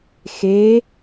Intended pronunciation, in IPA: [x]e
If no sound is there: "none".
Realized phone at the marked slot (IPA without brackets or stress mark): x